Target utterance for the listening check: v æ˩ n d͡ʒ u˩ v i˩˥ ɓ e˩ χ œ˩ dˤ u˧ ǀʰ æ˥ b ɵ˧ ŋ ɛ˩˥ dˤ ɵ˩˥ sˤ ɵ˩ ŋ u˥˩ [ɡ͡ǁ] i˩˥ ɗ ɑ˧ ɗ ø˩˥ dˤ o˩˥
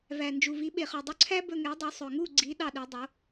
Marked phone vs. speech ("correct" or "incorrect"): incorrect